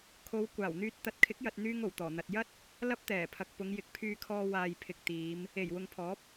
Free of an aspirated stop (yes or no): no